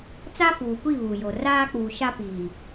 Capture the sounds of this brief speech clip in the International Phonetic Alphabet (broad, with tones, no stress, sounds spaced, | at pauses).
t͡s a˦ f uː˨ kʷ i˦˨ β u˨ j o˨ r aː˦ k͡p uː˨ ʃ a˦ p iː˨